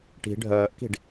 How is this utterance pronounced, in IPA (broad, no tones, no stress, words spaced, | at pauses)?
ʈi̤ ɖʱœːʔki̤ɖ